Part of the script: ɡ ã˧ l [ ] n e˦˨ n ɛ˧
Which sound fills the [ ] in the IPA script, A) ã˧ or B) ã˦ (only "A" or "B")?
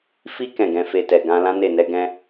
B